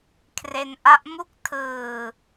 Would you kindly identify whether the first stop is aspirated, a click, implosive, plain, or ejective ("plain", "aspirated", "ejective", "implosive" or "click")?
aspirated